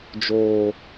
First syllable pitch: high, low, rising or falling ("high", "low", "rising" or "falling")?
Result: low